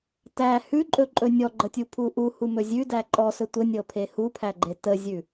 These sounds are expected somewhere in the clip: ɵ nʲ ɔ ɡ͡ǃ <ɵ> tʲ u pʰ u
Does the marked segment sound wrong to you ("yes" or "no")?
yes